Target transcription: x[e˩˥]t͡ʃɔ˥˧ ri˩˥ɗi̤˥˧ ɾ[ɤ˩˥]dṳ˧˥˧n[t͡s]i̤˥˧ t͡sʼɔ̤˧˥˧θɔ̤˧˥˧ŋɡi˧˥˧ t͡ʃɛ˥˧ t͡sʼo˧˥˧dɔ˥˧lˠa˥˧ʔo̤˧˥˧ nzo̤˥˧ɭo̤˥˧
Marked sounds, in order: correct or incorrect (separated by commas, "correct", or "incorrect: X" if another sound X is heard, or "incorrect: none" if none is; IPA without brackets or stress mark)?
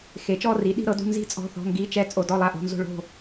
correct, correct, incorrect: z